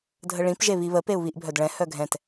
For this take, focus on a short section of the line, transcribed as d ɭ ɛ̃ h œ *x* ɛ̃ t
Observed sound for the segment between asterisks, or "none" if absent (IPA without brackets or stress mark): ɡʱ